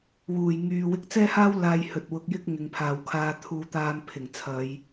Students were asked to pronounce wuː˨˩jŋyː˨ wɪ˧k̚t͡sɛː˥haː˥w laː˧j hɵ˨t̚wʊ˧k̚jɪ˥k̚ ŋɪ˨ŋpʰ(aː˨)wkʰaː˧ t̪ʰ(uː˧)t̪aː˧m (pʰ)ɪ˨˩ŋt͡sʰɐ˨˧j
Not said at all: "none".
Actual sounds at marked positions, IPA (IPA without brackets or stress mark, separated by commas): aː˨, uː˧, pʰ